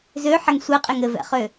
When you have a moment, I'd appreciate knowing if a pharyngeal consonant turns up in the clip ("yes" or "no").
yes